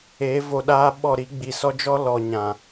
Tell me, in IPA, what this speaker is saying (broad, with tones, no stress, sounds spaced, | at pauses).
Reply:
e˨˦ v o˨ ɗ aː˧ ɓ ɔ˦˨ ɾ i˦ ɡ͡b i˨ s ɔ˦ d͡ʒ ɔ˦ l ɔ˨ ɲ ã˨